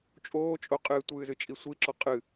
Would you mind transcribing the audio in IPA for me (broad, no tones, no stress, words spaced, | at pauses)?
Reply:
t͡ʃʼoːt͡ʃʼo qʼɨːtʷɨːzɨt͡ʃʼi sʷiǁɔ qʼɨ